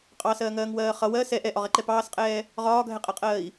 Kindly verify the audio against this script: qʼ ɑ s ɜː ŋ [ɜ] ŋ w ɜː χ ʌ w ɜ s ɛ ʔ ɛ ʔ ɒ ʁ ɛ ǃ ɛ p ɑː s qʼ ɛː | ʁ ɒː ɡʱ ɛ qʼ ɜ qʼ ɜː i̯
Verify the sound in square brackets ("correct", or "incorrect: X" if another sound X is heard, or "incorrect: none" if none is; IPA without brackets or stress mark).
incorrect: ɜː